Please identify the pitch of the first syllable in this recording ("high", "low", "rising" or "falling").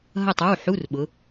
falling